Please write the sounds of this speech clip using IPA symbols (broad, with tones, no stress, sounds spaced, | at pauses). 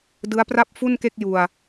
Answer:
d ɯ˦˥ a̯ p r a˥˩ p̚ f u˥˩ n k e˥˩ k̚ j u˧ a̯